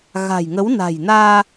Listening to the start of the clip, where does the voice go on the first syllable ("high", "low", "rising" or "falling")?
low